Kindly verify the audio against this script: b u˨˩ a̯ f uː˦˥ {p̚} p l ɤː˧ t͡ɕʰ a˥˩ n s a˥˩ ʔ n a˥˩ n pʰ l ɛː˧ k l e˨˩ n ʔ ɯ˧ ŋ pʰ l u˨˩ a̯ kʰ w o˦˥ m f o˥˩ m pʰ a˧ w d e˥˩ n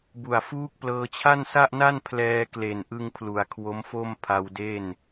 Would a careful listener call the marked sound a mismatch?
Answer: yes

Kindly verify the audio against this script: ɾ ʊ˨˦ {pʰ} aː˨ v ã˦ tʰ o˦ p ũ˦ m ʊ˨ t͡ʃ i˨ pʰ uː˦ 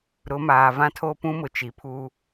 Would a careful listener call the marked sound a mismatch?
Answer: yes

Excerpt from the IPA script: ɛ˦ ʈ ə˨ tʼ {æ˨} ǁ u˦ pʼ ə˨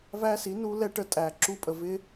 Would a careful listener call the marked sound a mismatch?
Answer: no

